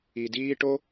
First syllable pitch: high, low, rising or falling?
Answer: low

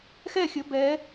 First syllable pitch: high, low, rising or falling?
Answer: falling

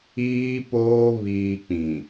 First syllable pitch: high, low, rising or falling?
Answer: high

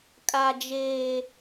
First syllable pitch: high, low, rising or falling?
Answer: low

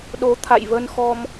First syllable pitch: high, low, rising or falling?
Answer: rising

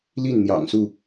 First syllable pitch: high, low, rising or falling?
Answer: falling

